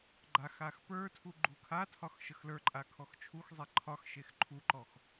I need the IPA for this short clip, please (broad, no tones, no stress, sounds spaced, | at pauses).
ɡ͡ǃ a x a x p ə˞ tʰ u ɡ͡ǃ u kʰ a tʰ ɒ x ʃ ə x l ə˞ ǃʼ a kʰ ɔ x t͡ʃʰ u x zˤ e ǃʰ ɒ x ʃ e x ǃʰ u ǃ ɔ x